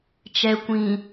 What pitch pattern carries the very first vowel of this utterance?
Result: low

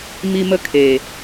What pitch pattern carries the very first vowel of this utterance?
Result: high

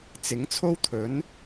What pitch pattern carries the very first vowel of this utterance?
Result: rising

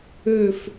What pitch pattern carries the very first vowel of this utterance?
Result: falling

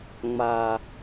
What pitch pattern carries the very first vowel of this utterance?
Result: low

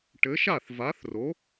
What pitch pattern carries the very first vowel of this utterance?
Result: rising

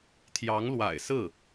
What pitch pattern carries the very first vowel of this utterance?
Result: rising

